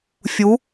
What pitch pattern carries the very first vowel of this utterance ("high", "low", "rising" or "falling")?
rising